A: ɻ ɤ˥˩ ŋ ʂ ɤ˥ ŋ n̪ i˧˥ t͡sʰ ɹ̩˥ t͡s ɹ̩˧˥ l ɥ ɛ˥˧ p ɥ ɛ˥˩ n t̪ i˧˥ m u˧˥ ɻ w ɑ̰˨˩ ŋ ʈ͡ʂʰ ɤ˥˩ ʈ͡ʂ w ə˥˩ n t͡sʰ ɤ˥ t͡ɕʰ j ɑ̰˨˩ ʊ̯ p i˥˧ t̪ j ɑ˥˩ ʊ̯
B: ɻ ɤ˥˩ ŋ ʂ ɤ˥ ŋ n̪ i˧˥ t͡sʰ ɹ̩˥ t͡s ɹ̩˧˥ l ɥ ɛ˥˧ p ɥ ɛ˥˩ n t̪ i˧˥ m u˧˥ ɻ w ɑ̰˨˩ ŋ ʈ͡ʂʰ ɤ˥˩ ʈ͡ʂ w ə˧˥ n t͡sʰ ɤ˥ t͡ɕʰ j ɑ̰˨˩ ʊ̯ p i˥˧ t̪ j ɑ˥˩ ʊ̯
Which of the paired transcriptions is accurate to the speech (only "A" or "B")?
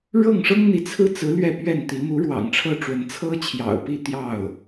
B